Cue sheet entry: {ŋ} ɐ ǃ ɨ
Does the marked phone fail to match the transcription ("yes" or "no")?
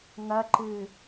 no